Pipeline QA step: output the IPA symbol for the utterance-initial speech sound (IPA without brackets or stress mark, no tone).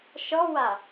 ʃ